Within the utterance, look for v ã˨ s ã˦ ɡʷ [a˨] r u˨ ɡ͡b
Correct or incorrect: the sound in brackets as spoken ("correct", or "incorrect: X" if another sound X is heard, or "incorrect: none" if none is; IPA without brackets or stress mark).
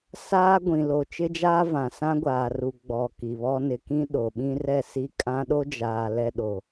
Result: incorrect: aː˨